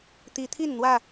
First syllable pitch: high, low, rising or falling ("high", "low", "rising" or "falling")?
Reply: rising